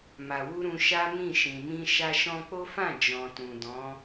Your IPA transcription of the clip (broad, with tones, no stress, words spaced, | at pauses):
ma˨wu˧ ɾũ˧ ʃa˦mĩ˦˨ ʃĩ˨mĩ˧ ʃa˧ʃɔ̃˧k͡po˦fã˦˨ d͡ʒɔ̃˨tũ˨dɔ̃˨˦